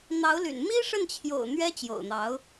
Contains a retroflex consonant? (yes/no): yes